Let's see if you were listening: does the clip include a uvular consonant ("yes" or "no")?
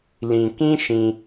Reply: no